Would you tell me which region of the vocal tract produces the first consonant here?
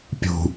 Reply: lips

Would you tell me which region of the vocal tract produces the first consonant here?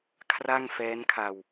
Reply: velum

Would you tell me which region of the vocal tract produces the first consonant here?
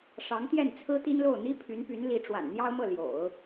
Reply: retroflex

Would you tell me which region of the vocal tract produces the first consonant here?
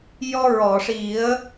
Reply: palate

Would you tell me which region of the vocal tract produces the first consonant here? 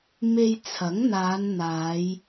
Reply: lips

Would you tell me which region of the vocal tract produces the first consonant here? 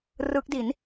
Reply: tongue tip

